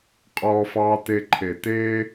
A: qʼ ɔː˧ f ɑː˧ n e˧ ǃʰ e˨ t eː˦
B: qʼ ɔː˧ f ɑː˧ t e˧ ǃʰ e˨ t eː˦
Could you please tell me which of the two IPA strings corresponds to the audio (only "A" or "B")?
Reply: B